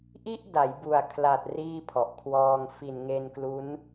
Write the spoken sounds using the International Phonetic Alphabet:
ʔ i˥˩ ʔ d a˩˦ j b u˨˩ a̯ kʰ l a˨˩ t̚ r iː˥˩ pʰ ɔ˨˩ ʔ kʰ w ɔː˧ ŋ f i˨˩ n ŋ e˧ n k l u˦˥ n

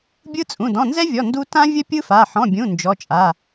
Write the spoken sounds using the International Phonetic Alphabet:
bʲ ɯ˦˥ t͡sʼ ũ˩˧˩ d ɔ̃˩˧˩ n z ɛ˦˥ vʲ ɔ˩˧˩ n d u˦˥ t ã˦˥ vʲ ə˦˥ pʲ ɯ˦˥ f a˩˧˩ ħ ɔ̃˩˧˩ bʲ ũ˩˧˩ n d͡ʒ ɔ˩˧˩ t͡ʃʼ a˩˧˩

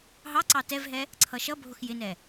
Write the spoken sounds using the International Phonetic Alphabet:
ɦ ɑ ǀ ɑ t ɛ v ɦ ɛ | ǀʰ ʌ ʃ ʌ bʱ ʊ x j ɪ n ɛ

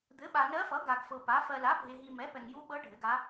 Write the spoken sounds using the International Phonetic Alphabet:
d̪ ɘ˩˥ ɓ a˨ n ɜ˧˥ f ʌ˩˥ ɡ a˨ ɡ f ɤ˨ p a˩˥ f ɜ˨ l a˩˥ bʱ e˨ ɦ i˨ m ɛ˩˥ p ɛ˨ ŋ j u˧˥ ɓ ɤ˧˥ ɖʱ ɘ˩˥ ɡ a˧˥

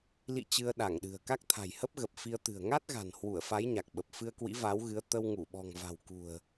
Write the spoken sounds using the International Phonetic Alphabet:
l ḭ˧˨ t͡ɕ ɨ˧ ə̯ ɗ a˧˩ ŋ ɗ ɨ̤˨˩ ə̯ k a˦˥ k̚ t̪ʰ a̤˨˩ j h ə˦˥ p̚ ɣ ə˨˩ p̚ f i˧ ə̯ t̪ ɨ̤˨˩ ə̯ ŋ a˦˥ t̚ ɣ a̤˨˩ n h w u˧˩ ə̯ f a˨˦ j ɲ a˨˩ k̚ ɓ ə˨˩ p̚ f ɨ˧ ə̯ k w ḭ˧˥ v a˨˦ w ɣ ɨ˨˦ ə̯ t̪ ə˧ w ŋ u˧˩ ɓ ɔ̤˨˩ ŋ v a̤˨˩ w k ṳ˨˩ ə̯

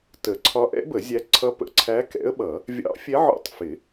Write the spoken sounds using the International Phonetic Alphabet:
t ə˨˩˦ ǀʰ ɒ˧˥ ʔ ɛ̰˧˥ b ə˨˩˦ zʲ æ˧˥ ǀʰ ʌ˧˥ p ə̰˨˩˦ ǀʰ æ˧˥ k ɛ̰˧˥ ə̯ ɓ ʌ˨˩˦ | vʲ ɑ̰˧˥ fʲ ɛ˧˥ ʕ ɔ̰˧˥ tˤ f ɪ˨˩˦

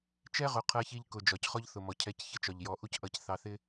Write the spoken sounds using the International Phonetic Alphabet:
t͡ʃ ɛ˦ ʁ ʊ˨˦ qʰ ɜ˧ ç i˧ ʎ k ʊ˨ d͡ʒ ɒ˨ c χ ɔ˦ ʎ θ ʊ˨ m ɔ˨ cʰ ɛ˧ c ç ɪ˦ t͡ʃ ɒ˨ ʎ j ɔ˨˦ ʔ u˦ c ʔ ʌ˧ c θ ɑ˧ θ ɪ˦

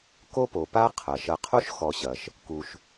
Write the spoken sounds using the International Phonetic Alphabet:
k o˦ p o˩ p a˦ qʰ ɐ˩ ʃ ɐ˨ qʰ o˥ ʃ x ɔ˨ ɕ ɐ˩ ʃ | k u˩ ʃ

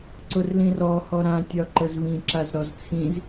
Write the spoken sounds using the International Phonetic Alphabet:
ǀ ʊ r l ĩ r ɔ h ɔ ɾ ã tʲ ɒ ǃ ə z v ĩ ǁ a z ɾ ɔ z t͡sʰ ĩ z

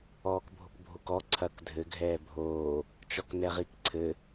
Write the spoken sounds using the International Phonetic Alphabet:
ɔː k bʱ o k bʱ o k ɔ ǀʰ ɐ k dʱ ɘ ɡʱ ɛː bʱ oː | t͡ʃ ɔ k n ɛ ʁ i k ǀʰ ɘ

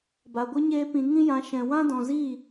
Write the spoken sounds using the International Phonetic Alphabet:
b a˨ ɡʷ ɨ˦ ɲ eː˦ p ĩ˧ ŋ ĩ˦ j ã˨˦ ʃ ɛ̃˨ w ã˦ d ɔ̃˨ z iː˦˨

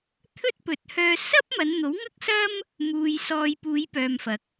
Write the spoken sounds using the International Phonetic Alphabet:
t̪ʰ ɵ˥ t̚ p ɵ˨˥ t̚ h œː˧ s ɐ˥ p̚ m ɐ˨˧ n n̪ o˨˥ w ŋ ɐ˥ k̚ s ɐ˥ m | m uː˨ j s ɔː˨ j p uː˨˧ j p œː˨ m f ɐ˨˥ k̚

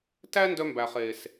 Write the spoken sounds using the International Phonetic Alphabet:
t æ˦ n d œ˦ m b æ˨ χ eː˨ s

